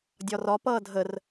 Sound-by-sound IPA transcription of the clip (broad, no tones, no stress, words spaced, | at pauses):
dʲɒrɒ pʌːdʱər